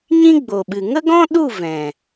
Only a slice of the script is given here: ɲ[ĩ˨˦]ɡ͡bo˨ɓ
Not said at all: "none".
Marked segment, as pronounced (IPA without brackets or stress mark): ĩ˦